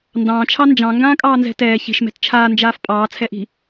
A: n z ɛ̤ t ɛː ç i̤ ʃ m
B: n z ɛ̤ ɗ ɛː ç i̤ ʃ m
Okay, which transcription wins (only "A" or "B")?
A